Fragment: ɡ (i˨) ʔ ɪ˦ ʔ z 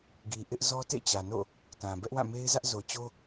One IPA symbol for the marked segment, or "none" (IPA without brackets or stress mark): i˨